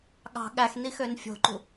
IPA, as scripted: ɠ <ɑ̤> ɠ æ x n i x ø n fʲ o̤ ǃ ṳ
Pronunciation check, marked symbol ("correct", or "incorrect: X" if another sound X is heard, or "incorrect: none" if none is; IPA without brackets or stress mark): correct